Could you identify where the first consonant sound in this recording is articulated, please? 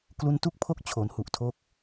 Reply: velar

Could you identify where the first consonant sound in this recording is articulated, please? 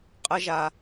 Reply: uvular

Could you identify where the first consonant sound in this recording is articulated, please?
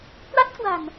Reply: velar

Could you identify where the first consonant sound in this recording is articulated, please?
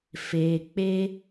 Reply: labial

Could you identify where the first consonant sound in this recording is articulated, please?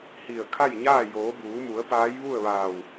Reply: glottal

